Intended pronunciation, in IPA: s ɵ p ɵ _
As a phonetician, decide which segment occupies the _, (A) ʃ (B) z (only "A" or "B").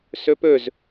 B